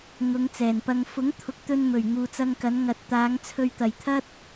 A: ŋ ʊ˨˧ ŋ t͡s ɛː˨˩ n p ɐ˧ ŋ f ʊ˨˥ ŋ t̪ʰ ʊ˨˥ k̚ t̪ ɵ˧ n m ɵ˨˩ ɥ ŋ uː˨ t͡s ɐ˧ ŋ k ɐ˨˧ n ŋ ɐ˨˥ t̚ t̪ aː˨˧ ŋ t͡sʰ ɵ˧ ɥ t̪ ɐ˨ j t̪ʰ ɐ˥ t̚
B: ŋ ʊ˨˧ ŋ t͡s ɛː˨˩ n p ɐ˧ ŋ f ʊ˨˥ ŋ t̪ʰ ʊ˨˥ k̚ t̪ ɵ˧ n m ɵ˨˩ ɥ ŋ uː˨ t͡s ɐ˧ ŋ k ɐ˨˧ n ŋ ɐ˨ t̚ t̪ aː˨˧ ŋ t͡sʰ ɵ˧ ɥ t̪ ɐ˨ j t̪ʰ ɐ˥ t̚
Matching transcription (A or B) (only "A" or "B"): B